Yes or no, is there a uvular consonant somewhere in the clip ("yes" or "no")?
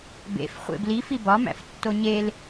yes